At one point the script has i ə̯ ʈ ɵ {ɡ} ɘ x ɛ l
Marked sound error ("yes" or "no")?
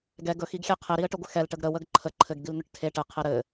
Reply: yes